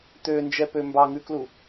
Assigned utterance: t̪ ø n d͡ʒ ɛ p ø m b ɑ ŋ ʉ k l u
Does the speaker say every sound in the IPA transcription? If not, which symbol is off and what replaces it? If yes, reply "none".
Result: none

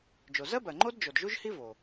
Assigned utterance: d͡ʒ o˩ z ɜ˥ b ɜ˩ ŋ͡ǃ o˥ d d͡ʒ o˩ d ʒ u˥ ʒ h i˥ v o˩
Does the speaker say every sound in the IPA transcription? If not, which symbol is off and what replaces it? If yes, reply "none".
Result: none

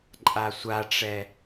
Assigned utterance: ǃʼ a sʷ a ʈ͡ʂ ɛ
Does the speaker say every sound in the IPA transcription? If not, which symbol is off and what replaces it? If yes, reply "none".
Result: none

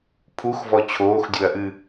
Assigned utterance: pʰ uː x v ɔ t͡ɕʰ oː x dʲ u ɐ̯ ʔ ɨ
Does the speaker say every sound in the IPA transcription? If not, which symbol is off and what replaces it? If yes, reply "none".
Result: uː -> u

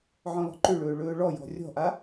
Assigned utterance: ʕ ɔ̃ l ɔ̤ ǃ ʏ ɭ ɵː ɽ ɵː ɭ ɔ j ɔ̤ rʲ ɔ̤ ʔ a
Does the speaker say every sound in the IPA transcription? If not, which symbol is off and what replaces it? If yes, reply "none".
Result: ɽ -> ɭ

